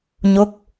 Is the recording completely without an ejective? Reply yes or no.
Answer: yes